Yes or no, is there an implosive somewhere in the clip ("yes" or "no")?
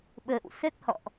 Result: yes